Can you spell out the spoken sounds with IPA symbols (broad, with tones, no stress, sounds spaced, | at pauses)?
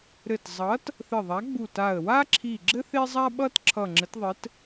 ɾ ɘ˧˩ t zˤ ʌ˨˥ t | θ ɘ˧˩ ðˤ a˨˥ ɡ͡b u˧˩ t a˧˩ ə̯ w a˥ ǁʰ i˧˩ ɡ͡ǁ ɘ˥ θ e˥ zˤ a˥ ɓ ʌ˥ t ǁʰ ʌ˧˩ ŋ͡ǁ ɘ˨˥ t ðˤ ɘ˨˥ t